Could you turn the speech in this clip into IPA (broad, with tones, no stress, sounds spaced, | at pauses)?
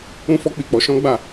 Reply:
ũ˦ f ɔ˦ k͡p i˦˨ k͡p ɔ˨˦ ʃ ɔ̃˦ ɡ͡b a˦˨